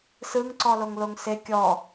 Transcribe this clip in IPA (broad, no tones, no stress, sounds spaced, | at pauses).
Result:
s ɯ ŋ ǀ ɔ l o ŋ l o ŋ s e kʲ ɔ